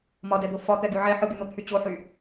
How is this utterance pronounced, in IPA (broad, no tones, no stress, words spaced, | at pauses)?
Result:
mɒdɛd̪o fɒt̪ɛɡy ʕɛ ħɯɡyn̪ot̪ʰy t͡ɕoħy